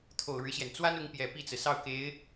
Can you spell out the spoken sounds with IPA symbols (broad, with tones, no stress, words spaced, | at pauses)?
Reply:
t̪ʰo˨˩ʊ̯ɻɻ̩˦ɕjɛ˩n t͡swa˥nʊ˧˥ŋpjɛ˨˩ pi˥˩t͡sɹ̩˩sɑ˥˩ʊ̯ke˧˥ɪ̯